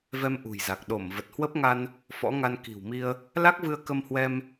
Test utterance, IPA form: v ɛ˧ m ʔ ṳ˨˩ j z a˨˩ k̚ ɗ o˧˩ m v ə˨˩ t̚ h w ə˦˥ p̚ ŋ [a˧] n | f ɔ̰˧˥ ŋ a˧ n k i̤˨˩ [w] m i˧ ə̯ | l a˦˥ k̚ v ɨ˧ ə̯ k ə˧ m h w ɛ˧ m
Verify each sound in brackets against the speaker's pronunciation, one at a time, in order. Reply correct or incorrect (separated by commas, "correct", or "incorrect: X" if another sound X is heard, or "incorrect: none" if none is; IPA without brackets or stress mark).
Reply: correct, correct